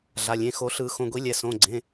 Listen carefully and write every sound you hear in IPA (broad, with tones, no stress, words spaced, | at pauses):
ɮa˩˧˩lʲẽ˩˧˩xo˨˩˦ɬɯ˨˩˦ xõ˩˧˩ɡʷi˨˩˦ lʲɛ˩˧˩ sõ˩˧˩ɡ͡ǀẽ˩˧˩